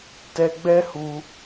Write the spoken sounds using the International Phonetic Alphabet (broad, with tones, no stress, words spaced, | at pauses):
tɛ˧ɡ͡bɛ˦hu˧